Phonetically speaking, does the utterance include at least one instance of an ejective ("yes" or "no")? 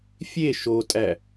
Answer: yes